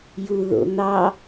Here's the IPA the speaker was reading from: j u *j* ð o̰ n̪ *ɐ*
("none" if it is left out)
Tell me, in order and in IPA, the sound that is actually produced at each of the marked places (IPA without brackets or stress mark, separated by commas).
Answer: none, ɑ